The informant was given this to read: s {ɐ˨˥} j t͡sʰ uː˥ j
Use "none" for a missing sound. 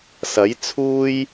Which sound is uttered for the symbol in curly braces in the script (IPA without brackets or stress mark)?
ɐ˨˥